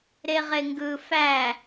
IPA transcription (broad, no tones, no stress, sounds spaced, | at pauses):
ɾ e ʁ e ŋ ɡ ɯ f æ